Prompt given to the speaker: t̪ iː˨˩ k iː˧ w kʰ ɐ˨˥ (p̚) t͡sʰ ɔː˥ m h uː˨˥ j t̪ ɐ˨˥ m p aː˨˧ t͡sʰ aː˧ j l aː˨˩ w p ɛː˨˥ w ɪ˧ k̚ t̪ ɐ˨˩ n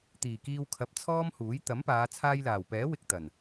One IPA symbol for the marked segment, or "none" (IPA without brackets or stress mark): p̚